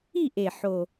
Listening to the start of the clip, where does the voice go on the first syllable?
falling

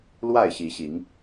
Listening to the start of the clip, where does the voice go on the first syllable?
falling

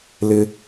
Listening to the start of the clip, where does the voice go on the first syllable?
high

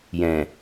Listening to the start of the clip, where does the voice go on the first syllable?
low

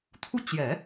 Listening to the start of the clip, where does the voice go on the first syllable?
falling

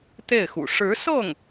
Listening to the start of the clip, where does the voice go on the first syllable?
falling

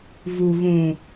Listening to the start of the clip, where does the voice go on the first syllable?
low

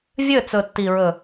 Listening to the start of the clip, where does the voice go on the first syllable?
falling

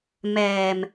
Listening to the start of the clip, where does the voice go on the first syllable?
low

